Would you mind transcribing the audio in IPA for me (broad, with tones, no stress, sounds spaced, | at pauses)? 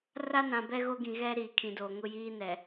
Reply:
r a˦ n ã˨ b ɛ˦ ɣ o˦ ɡ ĩ˨ ɣ ɛ˦ ɾ i˨ kʰ ĩ˨ d o˨ ŋ ʊ˦ j iː˦ n ɛ˨